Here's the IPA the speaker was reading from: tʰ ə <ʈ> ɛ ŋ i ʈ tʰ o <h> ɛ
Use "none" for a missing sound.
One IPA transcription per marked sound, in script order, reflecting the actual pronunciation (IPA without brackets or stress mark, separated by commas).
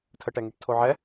ʈ, ʕ